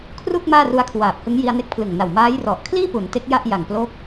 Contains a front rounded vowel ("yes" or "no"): no